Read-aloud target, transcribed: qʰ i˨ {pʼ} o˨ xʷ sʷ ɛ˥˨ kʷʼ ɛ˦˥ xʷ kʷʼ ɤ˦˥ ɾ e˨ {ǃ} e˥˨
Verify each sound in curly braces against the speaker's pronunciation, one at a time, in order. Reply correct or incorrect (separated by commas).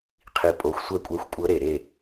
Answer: correct, incorrect